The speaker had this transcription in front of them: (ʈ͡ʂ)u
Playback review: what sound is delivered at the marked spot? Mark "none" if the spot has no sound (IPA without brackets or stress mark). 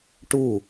ʈ